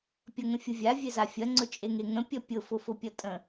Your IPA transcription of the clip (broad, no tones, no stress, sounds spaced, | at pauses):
pʲ ʌ ŋ ə̃ fʲ ʊ vʲ a vʲ e z a fʲ ɐ ŋ͡ǀ ʊ t͡ʃʼ e ŋ e ŋ ə̃ pʲ ʌ pʲ ʊ f ʊ f ʊ pʲ ʌ tʼ ə̃